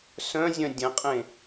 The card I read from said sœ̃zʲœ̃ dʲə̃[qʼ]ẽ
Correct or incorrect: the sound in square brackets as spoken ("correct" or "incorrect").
correct